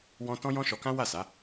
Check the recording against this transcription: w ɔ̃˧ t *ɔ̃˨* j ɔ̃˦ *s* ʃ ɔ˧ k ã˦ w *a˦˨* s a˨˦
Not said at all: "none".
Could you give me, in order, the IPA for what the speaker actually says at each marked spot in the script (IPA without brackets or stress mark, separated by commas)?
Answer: ɔ̃˦, none, a˦˨